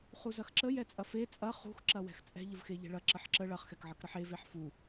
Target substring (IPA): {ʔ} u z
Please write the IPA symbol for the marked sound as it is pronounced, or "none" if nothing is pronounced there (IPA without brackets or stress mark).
χ